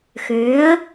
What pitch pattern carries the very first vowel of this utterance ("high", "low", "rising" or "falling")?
rising